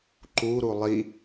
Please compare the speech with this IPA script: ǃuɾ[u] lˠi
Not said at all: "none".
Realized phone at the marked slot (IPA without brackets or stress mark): u